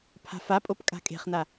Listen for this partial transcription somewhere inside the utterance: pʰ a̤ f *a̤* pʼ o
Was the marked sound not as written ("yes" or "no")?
yes